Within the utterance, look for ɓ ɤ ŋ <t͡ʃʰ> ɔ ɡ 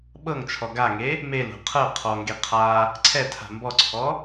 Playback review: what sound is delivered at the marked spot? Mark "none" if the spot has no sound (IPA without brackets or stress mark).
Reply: t͡ʃʰ